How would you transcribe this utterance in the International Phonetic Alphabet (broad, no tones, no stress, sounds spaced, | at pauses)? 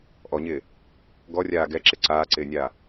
ʔ ɔ ɲ ɪː | ɡ ɔ rʲ aː ɡ ɛ ǁ ɪ ǀ aː ǀ ɪː nʲ aː